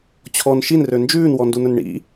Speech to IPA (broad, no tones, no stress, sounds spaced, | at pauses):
t͡ɕʰ ɔ n ʃ i n r ø n d͡ʒ ʉː n w ɔ n d u n ɵ n ɳ ḭ